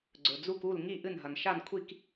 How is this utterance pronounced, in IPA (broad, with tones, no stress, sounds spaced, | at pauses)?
ɡ͡ǀ ɵ˩ d͡z u˧˩ k u˧˩ l ŋ i˧˩ ʔ ɨ˧˩ n ɦ ɐ˩ n ʃ a˧˩ n kʷʰ i˧˩ k